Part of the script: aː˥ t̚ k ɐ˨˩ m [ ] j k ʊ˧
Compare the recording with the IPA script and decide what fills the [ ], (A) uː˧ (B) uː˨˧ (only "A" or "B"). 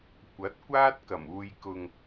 A